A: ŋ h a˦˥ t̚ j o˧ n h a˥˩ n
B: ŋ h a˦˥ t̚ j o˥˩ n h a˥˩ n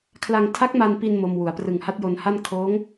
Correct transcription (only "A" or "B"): A